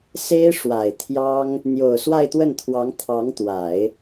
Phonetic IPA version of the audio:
s e˥ ɪ̯ ʂ w a˨˩ ɪ̯ t̪ʰ j ɑ˥ ŋ | n̪ j o˨˩ ʊ̯ s w a˥˧ ɪ̯ t̪ w ə˥˩ n t̪ʰ w ɑ˧˥ ŋ t̪ʰ ɑ˧˥ ŋ t̪ w a˨˩˦ ɪ̯

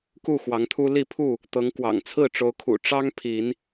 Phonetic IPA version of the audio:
k u˥˨ x w ɑ˨˦ ŋ t̪ʰ u˦ l i˥˨ pʰ u˥˨ | t̪ ɤ˨˦ ŋ k w ɑ̰˨˩ ŋ t͡sʰ ɹ̩˥˨ ʈ͡ʂ o˨˦ ʊ̯ kʰ ṵ˨˩ ʈ͡ʂ ɑ˦ ŋ pʰ i˨˦ n

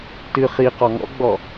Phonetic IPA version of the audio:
t ɨ χ i q ɔ ŋ ɔ̰ ɡ͡b ɔ

